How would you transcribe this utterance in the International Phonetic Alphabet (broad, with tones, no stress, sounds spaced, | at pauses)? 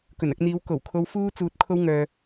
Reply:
k ɵ˨˩ n ɐ˧ k̚ n̪ iː˨˧ w k o˨˩ w kʰ o˥ w f uː˥ t͡s uː˧ t̚ kʰ o˥ w ŋ œː˧